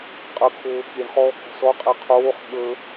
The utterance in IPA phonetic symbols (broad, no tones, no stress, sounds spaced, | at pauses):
qʼ ə kʰ oː k i ɳ χ ɔː k ɔ̤ s ɔ qʼ e qʰ oː χ ɠ ə